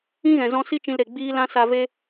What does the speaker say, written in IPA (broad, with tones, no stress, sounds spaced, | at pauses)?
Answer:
ĩ˦ ɣ ɛ̃˨ z ɔ̃˧ s i˦ t͡ʃ ĩ˧ l ɾ e˨ ɡ͡b iː˦ l ã˦ s a˧ v e˦